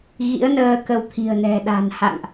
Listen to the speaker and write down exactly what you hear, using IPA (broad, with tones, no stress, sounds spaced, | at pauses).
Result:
ɣ ḭ˧˥ ə̯ n əː˧ k ə˧ w t̪ʰ i̤˨˩ ə̯ n ɛ̤˨˩ ɗ a̤˨˩ n h a̰˧˨ ŋ ʔ